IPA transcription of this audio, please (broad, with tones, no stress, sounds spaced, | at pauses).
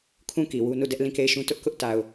kʰ ũ˦˨ k i˨ w u˦ n u˦˨ d ɛ˦ ʔ l ĩ˦˨ k e˦˨ ɪ̯ ʃ ũ˦ t ʊ˦ ʔ k ʊ˦ ʔ t a˨ ʊ̯